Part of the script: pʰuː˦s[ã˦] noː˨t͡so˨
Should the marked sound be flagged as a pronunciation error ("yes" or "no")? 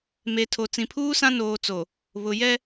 no